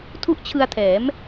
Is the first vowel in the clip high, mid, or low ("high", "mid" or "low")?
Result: high